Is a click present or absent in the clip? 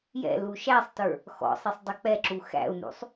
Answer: present